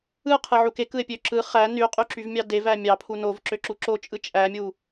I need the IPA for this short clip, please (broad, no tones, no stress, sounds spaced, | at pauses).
ɯ qʰ ɯ ʕ u k e k ɯ e̯ pʲ ø ǁ ɯ χ æ n y qʼ y ǁ y v mʲ ɑ d e v æ mʲ ɑ pʰ u n o v ǁ ø ǁ u ǁ o t͡ʃʼ ɯ t͡ʃʼ æ mʲ u